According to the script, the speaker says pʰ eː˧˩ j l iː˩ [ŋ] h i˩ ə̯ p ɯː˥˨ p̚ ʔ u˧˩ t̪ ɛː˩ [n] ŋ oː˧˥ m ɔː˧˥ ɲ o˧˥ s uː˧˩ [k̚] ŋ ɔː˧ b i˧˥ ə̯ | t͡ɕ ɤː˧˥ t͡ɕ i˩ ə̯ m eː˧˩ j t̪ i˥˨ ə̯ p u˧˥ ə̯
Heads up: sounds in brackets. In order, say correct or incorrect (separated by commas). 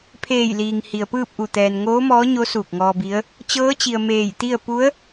correct, correct, correct